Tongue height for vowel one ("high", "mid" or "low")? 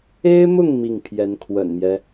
mid